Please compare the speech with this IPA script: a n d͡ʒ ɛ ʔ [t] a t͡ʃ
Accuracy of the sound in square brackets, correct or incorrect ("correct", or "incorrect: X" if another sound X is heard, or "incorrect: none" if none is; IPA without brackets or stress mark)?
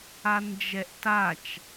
correct